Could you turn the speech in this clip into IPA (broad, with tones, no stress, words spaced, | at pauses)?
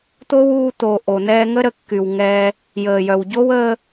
t̪o˦wuː˧t̪o˨ ʔo˨n̪ɛː˧ŋə˦ ɾə˨kːy˨w ŋɛ˧ | jəː˨jœ˨wɟo˦w ə˦